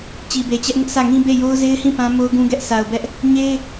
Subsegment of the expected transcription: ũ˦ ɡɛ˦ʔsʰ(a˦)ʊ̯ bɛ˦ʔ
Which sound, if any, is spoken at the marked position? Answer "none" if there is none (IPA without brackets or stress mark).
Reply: a˨